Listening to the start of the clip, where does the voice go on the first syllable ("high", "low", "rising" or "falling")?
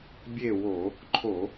falling